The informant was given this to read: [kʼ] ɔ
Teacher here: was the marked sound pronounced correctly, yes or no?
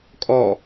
yes